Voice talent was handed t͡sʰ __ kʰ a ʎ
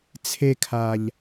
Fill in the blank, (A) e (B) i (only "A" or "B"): A